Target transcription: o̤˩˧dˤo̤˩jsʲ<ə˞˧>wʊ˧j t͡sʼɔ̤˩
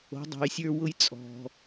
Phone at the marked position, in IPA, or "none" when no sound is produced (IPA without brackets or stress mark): ə˞˧